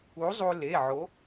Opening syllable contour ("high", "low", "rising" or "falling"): rising